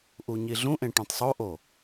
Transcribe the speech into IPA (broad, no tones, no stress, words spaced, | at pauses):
ʔuɲiɮũʔẽ ʈõtˤsˤoʔo